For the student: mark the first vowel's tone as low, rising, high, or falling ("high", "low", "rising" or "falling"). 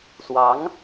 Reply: rising